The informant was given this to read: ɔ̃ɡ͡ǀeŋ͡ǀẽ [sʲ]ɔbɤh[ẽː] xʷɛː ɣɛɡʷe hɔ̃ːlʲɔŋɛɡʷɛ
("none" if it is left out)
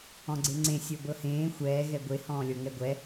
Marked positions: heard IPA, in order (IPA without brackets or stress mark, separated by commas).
sʲ, ẽː